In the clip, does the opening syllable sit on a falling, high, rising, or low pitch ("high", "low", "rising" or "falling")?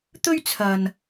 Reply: high